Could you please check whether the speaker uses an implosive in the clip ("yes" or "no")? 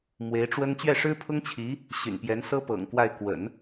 no